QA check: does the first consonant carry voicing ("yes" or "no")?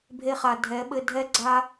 yes